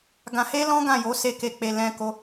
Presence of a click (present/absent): absent